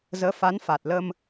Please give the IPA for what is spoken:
zəː˨˦fa˨˦nfa˨˩t̚lə˧m

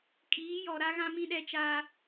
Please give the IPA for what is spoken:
kʼiː˨˦jɔ˨ ɾa˦ɣã˦mĩ˦ ɗɛ˦t͡ʃaː˦

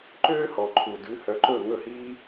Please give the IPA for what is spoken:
ǃøː˥hɔ˩ǃʰu˩ dʉ˩˥hœ˩˥ǃɵ˥˩ ŋɵ˥˩hiː˥

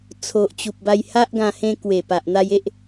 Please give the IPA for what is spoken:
t͡sʰo˨ʔt͡ɕu˨p̚ ba˧jha˦ʔɡã˧ hẽ˧kwe˨˩ pa˨ʔn̪a˧je˦ʔ

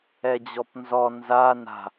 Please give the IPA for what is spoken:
ɛd͡ʑɔpnzɔ nza na̤

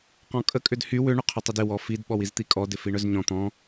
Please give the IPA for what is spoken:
qɔ̃kʼə kʼʏdhy wʏ ɳʏqʰʏtˤɪdɪ wɔfid ɓɔwizt̪ikʼɔ dɪfiɳœzɲɔ̃ t̪ɔ̃

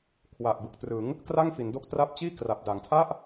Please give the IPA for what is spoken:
kʰwa˨˩ʔ bɯ˨˩k̚trɯ˩˦ŋ | kra˥˩ŋfi˩˦ndo˦˥k̚ tra˦˥p̚t͡ɕiː˥˩kra˨˩p̚ da˩˦ŋtʰa˥˩ʔ

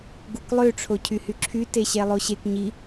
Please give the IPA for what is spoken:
ɡuklˠø ʈ͡ʂʰocʰyhyǁʰy teɕɛlˠoɕek ɲi

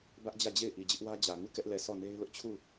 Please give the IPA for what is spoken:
bä˦ʔd͡ʑä˦˨d͡ʑe˦˨ɪ̯ ʔi˨d͡ʑɪ˦ʔwä˦d͡ʑä˨ ŋu˦˨kɛ˦ʔ lɛ˦˨ sɔ˦˨ne˦ɪ̯lʊ˦ʔ t͡ɕʰu˦˨

